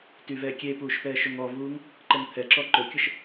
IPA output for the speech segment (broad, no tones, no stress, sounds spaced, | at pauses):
t y v ɛː kʲ e p uː ʃ p ɛː ʃ ɵ ŋ ɔ v uː ŋ | ǃ ə ŋ t̪ʰ ɛ ǁ ɔ ǃ ɵ kʲ ə ʃ